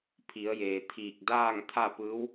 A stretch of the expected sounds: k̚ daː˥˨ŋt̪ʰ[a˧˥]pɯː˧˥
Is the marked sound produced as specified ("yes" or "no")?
no